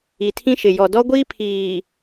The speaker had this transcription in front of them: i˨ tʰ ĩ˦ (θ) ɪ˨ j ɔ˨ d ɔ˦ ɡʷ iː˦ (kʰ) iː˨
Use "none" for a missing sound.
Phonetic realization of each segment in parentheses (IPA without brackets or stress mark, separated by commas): ʃ, pʰ